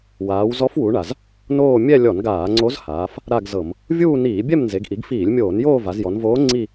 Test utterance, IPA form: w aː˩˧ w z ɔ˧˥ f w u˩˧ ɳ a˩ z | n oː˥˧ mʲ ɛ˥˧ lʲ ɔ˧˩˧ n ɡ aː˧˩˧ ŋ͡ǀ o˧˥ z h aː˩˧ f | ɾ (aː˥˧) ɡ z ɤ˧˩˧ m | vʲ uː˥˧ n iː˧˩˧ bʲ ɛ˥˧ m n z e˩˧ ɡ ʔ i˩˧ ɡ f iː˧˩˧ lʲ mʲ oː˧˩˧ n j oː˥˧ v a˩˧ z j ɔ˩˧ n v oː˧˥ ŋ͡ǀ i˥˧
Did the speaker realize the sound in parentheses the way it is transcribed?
no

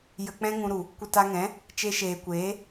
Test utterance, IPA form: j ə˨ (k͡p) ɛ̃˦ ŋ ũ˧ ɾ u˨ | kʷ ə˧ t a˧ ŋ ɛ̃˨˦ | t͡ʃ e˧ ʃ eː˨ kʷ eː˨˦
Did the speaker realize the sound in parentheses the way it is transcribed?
yes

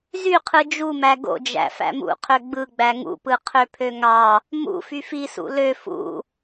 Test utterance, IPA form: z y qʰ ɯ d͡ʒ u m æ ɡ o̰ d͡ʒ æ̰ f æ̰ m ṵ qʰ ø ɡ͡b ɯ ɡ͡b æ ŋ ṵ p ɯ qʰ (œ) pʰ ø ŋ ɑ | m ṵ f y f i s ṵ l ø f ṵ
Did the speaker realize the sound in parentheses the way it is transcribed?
no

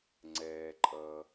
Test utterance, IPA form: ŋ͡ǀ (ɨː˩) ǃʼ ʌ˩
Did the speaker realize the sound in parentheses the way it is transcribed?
no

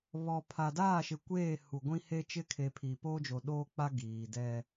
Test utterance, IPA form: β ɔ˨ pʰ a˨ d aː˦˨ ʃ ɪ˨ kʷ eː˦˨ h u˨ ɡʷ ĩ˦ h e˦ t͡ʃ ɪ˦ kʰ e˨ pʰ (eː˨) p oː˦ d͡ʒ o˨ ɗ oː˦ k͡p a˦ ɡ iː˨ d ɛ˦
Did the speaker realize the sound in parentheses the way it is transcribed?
no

